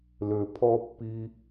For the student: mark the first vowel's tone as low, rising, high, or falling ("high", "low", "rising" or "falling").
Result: low